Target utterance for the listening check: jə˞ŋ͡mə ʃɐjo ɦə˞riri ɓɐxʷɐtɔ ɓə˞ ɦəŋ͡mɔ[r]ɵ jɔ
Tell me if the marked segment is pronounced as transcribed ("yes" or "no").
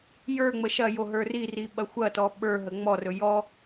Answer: yes